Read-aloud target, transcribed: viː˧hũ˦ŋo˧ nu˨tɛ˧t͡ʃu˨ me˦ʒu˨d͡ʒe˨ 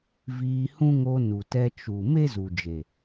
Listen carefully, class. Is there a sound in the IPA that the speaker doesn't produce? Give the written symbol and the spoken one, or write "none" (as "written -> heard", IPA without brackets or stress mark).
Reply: ʒ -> z